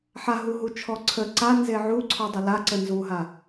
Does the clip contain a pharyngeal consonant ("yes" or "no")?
yes